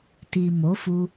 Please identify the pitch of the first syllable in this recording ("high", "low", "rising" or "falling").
low